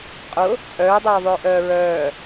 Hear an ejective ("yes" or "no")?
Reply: yes